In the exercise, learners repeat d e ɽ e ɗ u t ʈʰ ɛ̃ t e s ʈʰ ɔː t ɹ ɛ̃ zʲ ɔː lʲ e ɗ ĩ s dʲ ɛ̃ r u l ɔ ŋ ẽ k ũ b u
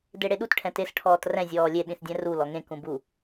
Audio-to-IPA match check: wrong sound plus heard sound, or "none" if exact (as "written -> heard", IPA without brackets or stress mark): ɹ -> r